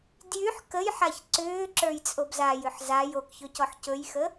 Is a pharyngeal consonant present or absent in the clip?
present